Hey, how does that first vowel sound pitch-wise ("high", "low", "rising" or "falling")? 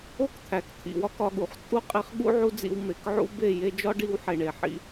high